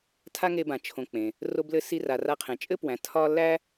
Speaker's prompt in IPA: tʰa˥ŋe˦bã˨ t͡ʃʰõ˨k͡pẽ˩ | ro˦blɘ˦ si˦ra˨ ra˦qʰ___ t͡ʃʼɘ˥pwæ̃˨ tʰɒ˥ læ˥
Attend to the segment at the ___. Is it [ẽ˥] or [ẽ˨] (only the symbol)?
ẽ˨